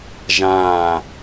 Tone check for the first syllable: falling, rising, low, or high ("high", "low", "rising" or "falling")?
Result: falling